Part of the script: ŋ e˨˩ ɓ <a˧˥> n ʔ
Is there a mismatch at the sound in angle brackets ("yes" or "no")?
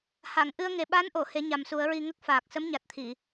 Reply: no